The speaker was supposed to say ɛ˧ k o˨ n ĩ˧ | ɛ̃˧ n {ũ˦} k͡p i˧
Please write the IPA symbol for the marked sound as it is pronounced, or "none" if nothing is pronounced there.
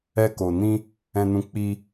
ũ˧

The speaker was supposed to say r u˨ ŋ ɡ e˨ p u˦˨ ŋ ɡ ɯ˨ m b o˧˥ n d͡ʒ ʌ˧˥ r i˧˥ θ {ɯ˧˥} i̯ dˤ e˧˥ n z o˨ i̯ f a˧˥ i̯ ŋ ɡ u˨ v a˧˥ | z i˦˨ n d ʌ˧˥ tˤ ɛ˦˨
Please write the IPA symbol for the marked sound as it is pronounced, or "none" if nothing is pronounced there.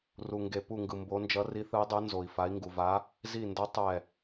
ɯ˧˥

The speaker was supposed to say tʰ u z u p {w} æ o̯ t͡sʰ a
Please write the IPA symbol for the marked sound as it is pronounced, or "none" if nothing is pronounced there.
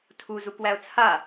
w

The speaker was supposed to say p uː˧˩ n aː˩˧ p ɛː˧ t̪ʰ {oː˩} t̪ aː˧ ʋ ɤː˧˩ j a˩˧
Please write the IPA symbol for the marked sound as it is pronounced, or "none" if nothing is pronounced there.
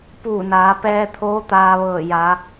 oː˧˥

